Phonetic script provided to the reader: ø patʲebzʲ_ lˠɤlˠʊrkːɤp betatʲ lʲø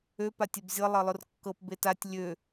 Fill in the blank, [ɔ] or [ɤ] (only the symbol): ɤ